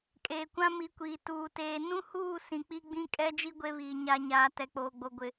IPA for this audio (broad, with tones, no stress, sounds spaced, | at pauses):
kʼ eː˨ kʷ ã˦ m i˨˦ kʷ iː˨ t uː˨ t eː˨ n ũ˦ h uː˦˨ s ĩ˨ k͡p i˦ ɡ͡b ĩ˦ kʼ ɛ˦ d͡ʒ i˦ ɡʷ e˦ β iː˨ ɲ a˨ ɲ aː˨ t ɛ˨ k͡p oː˨ ɡ͡b o˨ ɡʷ ɪ˨